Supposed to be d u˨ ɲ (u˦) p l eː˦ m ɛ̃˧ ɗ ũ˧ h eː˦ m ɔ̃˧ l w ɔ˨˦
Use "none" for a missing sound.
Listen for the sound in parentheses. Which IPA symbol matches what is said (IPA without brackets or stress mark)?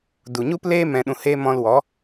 u˦